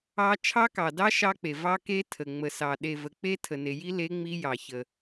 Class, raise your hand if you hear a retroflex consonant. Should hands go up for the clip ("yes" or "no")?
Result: no